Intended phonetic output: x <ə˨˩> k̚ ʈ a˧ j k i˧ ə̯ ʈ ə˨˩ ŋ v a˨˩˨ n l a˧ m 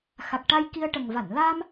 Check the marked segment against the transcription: incorrect: a˨˩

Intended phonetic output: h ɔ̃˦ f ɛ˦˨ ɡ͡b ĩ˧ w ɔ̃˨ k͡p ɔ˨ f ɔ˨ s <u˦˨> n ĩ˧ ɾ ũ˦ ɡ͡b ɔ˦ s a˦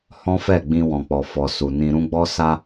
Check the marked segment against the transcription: incorrect: u˨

